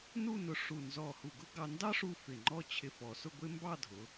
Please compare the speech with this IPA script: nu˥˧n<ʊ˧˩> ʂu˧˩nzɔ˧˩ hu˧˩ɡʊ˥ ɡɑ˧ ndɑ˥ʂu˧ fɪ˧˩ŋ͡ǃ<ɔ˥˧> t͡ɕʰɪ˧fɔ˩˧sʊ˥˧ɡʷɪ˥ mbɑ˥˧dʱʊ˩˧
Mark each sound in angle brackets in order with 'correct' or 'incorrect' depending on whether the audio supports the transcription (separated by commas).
correct, correct